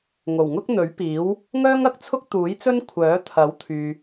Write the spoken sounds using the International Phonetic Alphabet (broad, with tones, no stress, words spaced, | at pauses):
ŋo˨˩wŋʊ˥k̚n̪ɵ˨˥ɥpiː˨˥w | ŋœː˥ŋɐ˨k̚ t͡sʰʊ˥k̚t̪uː˨˥jt͡sɵ˥n kʷʰœː˨˥ t̪ʰɐ˨˥wt̪ʰyː˨